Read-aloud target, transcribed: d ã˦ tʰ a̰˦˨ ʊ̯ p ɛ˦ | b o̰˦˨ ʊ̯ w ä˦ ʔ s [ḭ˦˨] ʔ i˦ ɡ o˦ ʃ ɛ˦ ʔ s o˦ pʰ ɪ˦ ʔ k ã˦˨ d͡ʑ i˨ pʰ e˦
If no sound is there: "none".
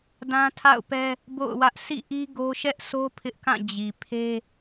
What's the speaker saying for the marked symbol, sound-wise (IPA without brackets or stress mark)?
ḭ˦˨